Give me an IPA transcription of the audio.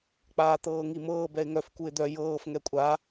k͡p aː t̪ ɤː ŋ i m ɤː b ɛ ɪ̯ ŋ œ f k u ɪ̯ d̪ œ j ɤː f ŋ ɛ kʷʼ a

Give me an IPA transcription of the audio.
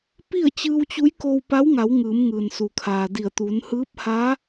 p i˥˨ ə̯ t͡ɕ ɯː˧ w t͡ɕ u˧˥ j k o˧ w p a˧˥ w ŋ a˩˧ w ŋ ɯː˩˧ m ŋ ɯː˩ n s u˩ kʰ aː˩ d i˧˩ ə̯ t̪ uː˩˧ n h ɯː˧˥ p̚ h a˧˥

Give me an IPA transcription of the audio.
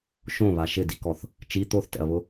ʃ õ β a ʃ ɪ d i k ɔ θ | t͡ʃ i t̪ o θ t ɛ̰ ɐ̯ β ʊ

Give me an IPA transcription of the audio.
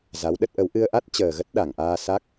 z a˨˦ w ɗ ə˦˥ t̚ ʔ ə˨˦ w ʔ ɨ˧ ə̯ ʔ a˦˥ t̚ t͡ɕ əː˨˩ ɣ ə˦˥ t̚ ɗ a˧˩ ŋ ʔ aː˧ s a˦˥ k̚

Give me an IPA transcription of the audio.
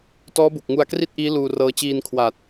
t ɔː˦˥ b u˨˩ k̚ ŋ u˧ a̯ k r i˥˩ t̚ ʔ iː˦˥ l uː˧ r ɤː˦˥ t͡ɕ iː˧ n kʰ w aː˨˩ t̚

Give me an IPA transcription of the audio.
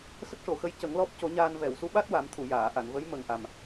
s ə˦˥ k̚ ʂ o˨˩˨ x ə˧˥ j c ə˨˩˦ ŋ l ɔ˦˥ p̚ c o˨˩˦ ɲ aː˧ n v ɛ˨˩˨ w s u˧˥ ɓ a˦˥ t̚ w a˨˩˦ m t̪ʰ u˨˩˨ j aː˨˩˨ ʔ a˨˩˨ n v ə˧˥ j m ə˨˩ ŋ ʔ a˨˩ m

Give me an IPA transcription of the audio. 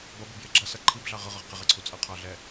b ʌ b i b j ɪ ɡ͡ǁ ʌ s ʌ ǃʰ i b ɮ ɑ ʁ ʌ ʁ ʌ ʁ q ɪ ʁ ɛ ǀʰ u t͡sʼ ʌ qʰ ɑ ɮ ɛ

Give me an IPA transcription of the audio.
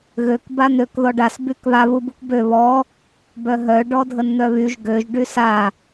ɣ ø k b a n̪ ø k ð ɔ ɖ a s b y k β a β u b u k b ø β ɔ | b œ ɦ œ ɖ ɔ dʱ ə n n̪ œ β y ʒ ɡ ø ʒ ɖ y s a

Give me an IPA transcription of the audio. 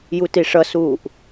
j u t i ʂ ʌ s uː ʔ

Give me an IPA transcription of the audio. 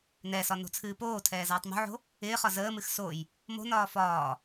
n ɛ s ɒ n o̤ t͡sʰ ɨː p oː tʰ ɛː z ɒː tˤ m o̤ ʕ o̤ | ɪː χ ɒ z əː m ɨ x s o j | m o̤ n ɒː f ɒː

